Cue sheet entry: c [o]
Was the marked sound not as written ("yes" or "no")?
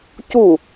yes